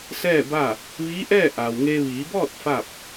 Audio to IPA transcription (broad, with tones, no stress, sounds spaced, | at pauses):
s ɛː˥˨ b a˥˨ | ʋ iː˧˥ ʔ ɛː˥˨ ʔ a˩ w ŋ e˧ ʋ iː˩˧ b ɔː˥˨ t̚ f a˥˨ p̚